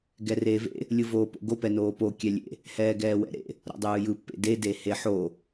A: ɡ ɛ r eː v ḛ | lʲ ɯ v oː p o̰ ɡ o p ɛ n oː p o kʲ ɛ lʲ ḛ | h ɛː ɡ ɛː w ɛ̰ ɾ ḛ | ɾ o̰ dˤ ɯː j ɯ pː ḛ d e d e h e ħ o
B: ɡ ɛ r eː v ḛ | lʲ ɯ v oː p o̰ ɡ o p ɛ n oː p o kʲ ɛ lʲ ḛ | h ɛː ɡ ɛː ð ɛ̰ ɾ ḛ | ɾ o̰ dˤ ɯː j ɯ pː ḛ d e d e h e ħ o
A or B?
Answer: A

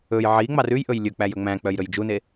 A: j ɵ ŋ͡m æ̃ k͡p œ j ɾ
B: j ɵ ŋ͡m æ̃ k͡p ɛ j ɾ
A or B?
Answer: A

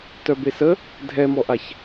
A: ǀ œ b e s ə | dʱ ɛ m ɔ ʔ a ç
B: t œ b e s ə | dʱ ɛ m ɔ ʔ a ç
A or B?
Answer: B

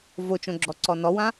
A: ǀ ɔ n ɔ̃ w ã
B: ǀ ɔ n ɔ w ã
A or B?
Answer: B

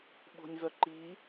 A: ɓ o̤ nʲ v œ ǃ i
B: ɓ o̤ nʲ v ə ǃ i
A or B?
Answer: A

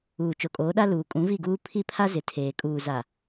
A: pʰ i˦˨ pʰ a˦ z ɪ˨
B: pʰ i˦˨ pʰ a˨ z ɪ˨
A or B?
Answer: A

